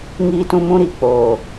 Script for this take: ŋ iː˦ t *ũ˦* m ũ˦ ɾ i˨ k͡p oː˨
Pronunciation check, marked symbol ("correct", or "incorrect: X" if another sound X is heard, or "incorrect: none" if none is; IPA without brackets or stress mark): correct